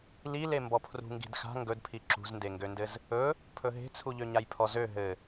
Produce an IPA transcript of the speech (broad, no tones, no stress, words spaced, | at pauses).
lile mbɔpʰrṳŋɡi̤dxa̤ ŋɡɵdpʰi ǁṳzndeŋɡøndɘz | ɵ | pʰɵɦe̤t͡sʰuʎø ɲajpʰɔzø ɦɘ